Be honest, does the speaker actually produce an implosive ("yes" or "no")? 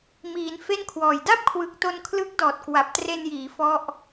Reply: no